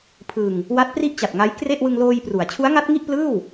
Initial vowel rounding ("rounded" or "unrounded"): unrounded